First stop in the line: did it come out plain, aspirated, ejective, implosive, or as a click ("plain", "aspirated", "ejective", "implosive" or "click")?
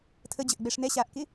aspirated